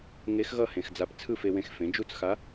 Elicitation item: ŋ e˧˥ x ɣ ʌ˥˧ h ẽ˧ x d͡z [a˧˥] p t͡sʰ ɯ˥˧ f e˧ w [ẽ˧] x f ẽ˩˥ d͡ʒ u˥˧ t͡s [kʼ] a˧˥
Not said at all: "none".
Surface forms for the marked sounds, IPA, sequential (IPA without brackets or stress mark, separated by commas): a˧˥, ẽ˧, x